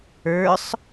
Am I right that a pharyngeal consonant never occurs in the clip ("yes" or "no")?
yes